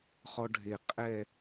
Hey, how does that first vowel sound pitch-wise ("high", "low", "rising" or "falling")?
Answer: high